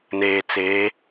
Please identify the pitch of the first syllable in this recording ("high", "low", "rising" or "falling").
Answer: low